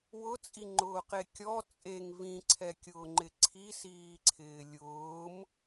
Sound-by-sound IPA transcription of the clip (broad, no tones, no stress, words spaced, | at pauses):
wʊt͡sʼiŋ͡ǃʊːqe kʲɔ t͡sʼeŋ vĩǀʰɛkʲʊː ŋ͡ǃɪǀʰisiːǀʰɪː lʲʊːm